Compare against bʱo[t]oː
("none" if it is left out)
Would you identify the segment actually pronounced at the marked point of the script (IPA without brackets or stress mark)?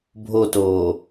t